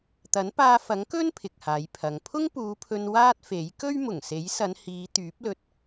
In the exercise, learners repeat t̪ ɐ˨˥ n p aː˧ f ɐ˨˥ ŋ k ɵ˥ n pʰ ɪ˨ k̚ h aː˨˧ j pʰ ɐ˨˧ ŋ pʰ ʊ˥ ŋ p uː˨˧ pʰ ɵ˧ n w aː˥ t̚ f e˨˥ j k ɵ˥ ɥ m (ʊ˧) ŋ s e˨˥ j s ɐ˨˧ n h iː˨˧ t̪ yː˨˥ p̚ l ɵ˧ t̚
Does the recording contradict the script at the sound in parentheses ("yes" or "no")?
yes